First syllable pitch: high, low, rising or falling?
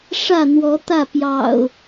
falling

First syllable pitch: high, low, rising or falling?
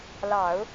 low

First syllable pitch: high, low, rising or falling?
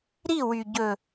falling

